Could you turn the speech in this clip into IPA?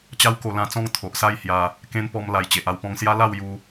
t͡ɕ a˦ w k o˧ l ã˧ t͡s ɔ̃˥˧ ŋ t̪ʰ o˨ ʔ s a˥˧ j h j a˧ | k ẽ˧ n p ɔ˧ m l a˨˩ j t͡ɕ e˨ ʔ a˧ w p ɔ̃˧ ŋ s j a˦ l a˥˧ w j u˧

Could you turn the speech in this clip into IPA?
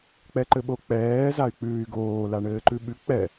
k͡p ɛ ǃ ɘ ɓ o k͡p ɛː z a y̯ k͡p ʉː y̯ ɡ oː l a ɳ ɘː ǃ ʉ ɓ ʉ k͡p ɛ

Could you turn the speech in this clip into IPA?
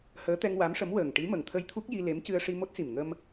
h əː˧˥ t̪ ɛ˧ ŋ w a˧˥ m ʂ ə˧˥ m w əː˨˩ ŋ ʈ i˧˥ m ə˨˩ ŋ t̪ʰ ə˧ j t̪ʰ u˦˥ k̚ j i˧ l e˧˥ m c ɨ˧ ə̯ ʂ i˧ m o˦˥ t̚ s i˨˩ m ŋ ə˧ m

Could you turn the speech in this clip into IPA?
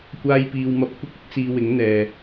kʷ aː˧ j p iː˨ w m ɐ˧ p̚ kʷ ɪ˥ k̚ ɪ˥ k̚ t͡s iː˧ w ɪ˨˥ ŋ n̪ ɛː˨

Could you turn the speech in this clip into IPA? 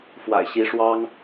f w a̰˨˩ ɪ̯ ɕ i˧˥ ʂ w ɑ˥ ŋ

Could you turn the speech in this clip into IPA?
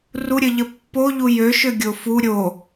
r u ɾʲ ə ʎ ə pː o ʎ u j ø ʃ ø ɡʲ o f u ɾʲ o

